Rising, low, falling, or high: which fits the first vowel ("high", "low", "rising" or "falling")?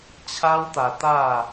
high